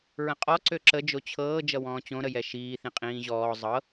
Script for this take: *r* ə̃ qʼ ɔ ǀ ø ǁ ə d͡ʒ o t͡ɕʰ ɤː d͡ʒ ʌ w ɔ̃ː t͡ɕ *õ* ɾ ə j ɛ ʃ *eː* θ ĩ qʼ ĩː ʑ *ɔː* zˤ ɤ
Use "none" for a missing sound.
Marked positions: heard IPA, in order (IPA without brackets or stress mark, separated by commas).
ɹ, õ, iː, ɔː